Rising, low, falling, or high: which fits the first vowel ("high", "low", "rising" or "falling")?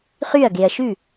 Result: falling